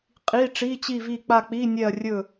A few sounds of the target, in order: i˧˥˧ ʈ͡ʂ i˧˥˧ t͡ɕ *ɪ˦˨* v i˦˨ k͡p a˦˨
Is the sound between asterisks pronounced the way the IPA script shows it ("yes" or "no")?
no